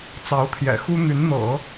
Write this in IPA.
t͡s ɑ˧˥ ʊ̯ t̪ʰ j ɛ̰˨˩ x u˥ n̪ y˧˥ n n̪ ɤ̰˨˩˦

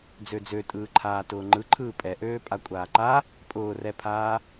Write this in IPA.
d͡z ø d͡z ø tʼ ɯː ǃʰ aː t ʊː ŋ͡ǃ ɯ ǃʰ ɯː pʼ ɛ ʔ øː pʼ a kʷʼ aː ǃ a | pʼ ʊː r ɛ pʰ aː

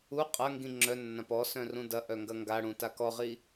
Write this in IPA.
u qʼ ɐ ŋ ɡ ĩ ŋ͡ǁ œ nː ã p ɔ s œ̃ r ũ d ɐ ʔ œ ŋ ɡ ɐ ŋ ɡ a ɽ ũ t a k ɔ ʁ i

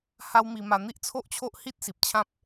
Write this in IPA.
h a˦ w m i˧ m a˧ n̪ i˦ ʔ t͡sʰ o˦ ʔ t͡ɕʰ o˦ ʔ h i˦ t̚ s i˨ p̚ t͡ɕʰ ã˦ p̚

